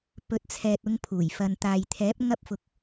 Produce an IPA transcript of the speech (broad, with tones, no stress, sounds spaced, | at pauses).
p ɵ˨˥ t̚ t͡sʰ ɛː˨ t̚ ʊ˧ ŋ pʰ uː˨˩ j f ɐ˨ n t̪ aː˨ j t̪ʰ ɛː˨˥ p̚ ŋ ɐ˧ p̚ f ʊ˨ k̚